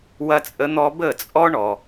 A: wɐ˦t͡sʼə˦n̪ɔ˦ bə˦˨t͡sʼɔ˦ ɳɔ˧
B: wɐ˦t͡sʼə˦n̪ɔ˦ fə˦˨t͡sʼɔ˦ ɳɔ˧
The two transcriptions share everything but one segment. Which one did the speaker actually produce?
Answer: A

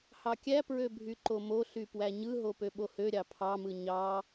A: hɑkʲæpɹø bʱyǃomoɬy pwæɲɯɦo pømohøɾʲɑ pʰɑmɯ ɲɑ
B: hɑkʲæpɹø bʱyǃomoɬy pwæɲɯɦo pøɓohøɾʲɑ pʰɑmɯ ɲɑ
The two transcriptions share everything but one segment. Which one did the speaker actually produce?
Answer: B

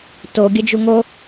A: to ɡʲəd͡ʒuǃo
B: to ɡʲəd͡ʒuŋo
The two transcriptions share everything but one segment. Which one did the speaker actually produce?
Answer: B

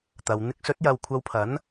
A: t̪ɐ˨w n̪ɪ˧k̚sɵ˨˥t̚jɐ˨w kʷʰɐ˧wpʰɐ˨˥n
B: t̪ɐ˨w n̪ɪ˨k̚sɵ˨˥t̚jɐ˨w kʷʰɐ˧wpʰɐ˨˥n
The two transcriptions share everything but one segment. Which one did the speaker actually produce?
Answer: A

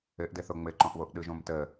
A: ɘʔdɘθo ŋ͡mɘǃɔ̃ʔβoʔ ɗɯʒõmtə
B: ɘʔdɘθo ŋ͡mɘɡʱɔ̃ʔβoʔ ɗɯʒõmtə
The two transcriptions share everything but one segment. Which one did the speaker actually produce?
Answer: A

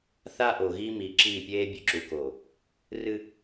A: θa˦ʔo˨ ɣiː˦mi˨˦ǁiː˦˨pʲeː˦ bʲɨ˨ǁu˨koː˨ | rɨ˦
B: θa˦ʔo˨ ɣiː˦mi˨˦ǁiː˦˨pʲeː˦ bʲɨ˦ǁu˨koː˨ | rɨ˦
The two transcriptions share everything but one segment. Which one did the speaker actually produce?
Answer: A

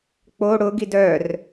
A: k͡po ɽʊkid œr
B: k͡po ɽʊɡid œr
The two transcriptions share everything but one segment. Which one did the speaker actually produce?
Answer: B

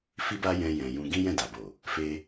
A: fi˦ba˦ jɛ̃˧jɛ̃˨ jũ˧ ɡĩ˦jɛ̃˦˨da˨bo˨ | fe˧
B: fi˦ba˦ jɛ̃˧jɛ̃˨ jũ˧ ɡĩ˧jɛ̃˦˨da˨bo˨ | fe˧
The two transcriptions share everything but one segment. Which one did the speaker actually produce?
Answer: A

